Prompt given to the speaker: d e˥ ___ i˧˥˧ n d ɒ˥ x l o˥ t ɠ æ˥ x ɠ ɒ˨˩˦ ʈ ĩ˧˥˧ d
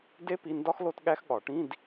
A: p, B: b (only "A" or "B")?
A